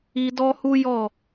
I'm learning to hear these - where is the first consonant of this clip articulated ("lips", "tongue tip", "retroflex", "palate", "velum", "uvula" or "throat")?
tongue tip